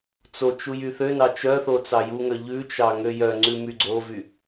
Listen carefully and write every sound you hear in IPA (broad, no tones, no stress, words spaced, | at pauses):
t͡sot͡ʃu jyθønɑ t͡ʃœθo t͡sɑjuŋœ ʎʉt͡ʃɑ ŋøjœŋ͡ǀʉ myɡ͡ǀovy